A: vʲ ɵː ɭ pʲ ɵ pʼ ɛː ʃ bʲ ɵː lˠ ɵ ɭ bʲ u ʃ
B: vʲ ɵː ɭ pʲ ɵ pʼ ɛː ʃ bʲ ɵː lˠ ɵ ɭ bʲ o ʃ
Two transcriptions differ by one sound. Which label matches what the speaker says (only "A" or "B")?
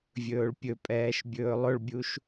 A